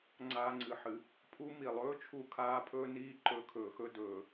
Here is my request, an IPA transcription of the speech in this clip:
ŋ͡ǀ aː˧ ŋ͡ǀ ɨ˨˩˦ ħ ɨ˨˩˦ | pʰ u˧˥ m i˩ lˠ ɵː˧˥ t͡ʃʰ u˧ kʰ aː˧˥ pʰ ɵː˧ n iː˧ ǃ ɵ˨˩˦ kʰ ɵː˩ x ɵ˧ d ɵː˩

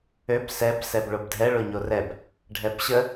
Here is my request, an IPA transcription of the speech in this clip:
ø b s ɛ b s ɛ b ɭ o b dʱ ɛ ɭ o ɲ o r ɛ b | ɖʱ ɛ b ɕ ə

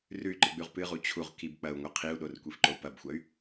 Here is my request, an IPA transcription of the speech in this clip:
r ʉ y̯ ǃ ɨ ɡ͡b ʉ ʁ p ɨ ʁ u t͡ɕʰ u ʁ k i b k͡p ɐ u̯ ŋʷ ɐ qʰ i u̯ ɗ o r kʷ i f ǃ o u̯ p ɐ b xʷ ɐ y̯

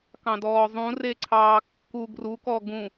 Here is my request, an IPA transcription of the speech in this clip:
k ɑ̃ d ɔː zˤ ũ r e ǀʰ ɑː kː u ɡ r u k ɔ ɡ ũ

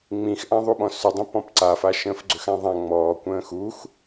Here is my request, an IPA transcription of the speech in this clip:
ŋ͡m ĩ x ʔ ã ðˤ u ɓ ɔ̃ s ʏ dˤ ə̃ p ɔ̃ p ǀ a f a ʃ ə̃ː f ɡ͡ǀ ʏ x ã ðˤ ã ŋ͡m ɔː kʷ ə̃ː x u x

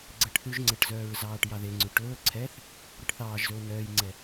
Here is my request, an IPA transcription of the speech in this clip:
ɡ͡ǀ ɛ ʈ θ ʉ ʒ ŋ͡ǀ ɛ ʈ z œː ɹ z ɑː ʈ j ɑ ð e ŋ͡ǀ ʉ ʈ ɵː ǀʰ ɛ θ | ɾ e ʈ θ ɑː ʒ z ɵː n œː j ŋ͡ǀ ɛ

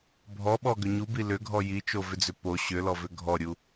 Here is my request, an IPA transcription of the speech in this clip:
bʱ ɔ ɓ ɔ ɡ ʏ ɲ u b i l ʏ ɡʱ ɔ j i t͡ʃ o v ʏ d͡z ʏ p o ɕ ʏ l ɔ v ʏ ɡʱ ɔ ɾʲ u

